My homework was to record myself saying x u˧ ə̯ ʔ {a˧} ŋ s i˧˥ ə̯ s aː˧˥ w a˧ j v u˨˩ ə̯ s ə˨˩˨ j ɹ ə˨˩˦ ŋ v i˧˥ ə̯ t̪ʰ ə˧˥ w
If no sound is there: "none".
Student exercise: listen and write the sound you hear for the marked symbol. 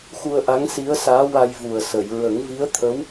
a˧˥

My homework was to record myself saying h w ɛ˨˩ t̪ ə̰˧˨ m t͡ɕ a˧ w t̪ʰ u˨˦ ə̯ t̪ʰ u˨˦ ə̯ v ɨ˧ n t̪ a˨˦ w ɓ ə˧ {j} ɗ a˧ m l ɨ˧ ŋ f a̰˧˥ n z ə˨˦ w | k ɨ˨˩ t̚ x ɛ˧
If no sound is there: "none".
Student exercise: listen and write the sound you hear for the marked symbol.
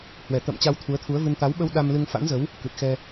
w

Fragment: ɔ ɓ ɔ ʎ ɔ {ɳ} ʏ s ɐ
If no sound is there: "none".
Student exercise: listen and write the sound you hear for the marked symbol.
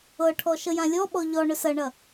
ɳ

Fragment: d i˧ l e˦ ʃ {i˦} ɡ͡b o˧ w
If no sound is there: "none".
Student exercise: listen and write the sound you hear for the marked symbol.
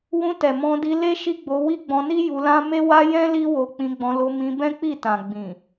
i˦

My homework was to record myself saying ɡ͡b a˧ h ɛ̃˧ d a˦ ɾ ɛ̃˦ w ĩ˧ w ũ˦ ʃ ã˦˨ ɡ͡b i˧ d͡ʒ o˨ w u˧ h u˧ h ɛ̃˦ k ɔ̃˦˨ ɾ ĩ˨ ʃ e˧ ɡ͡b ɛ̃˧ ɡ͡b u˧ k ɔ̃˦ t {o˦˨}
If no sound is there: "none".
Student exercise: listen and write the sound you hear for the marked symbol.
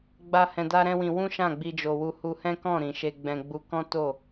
o˦˨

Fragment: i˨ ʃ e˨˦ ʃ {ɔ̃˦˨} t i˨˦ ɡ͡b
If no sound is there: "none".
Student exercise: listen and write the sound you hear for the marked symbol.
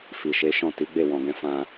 ɔ̃˦˨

